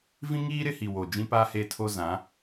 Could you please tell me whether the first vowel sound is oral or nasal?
nasal